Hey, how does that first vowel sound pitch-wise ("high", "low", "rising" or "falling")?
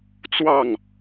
falling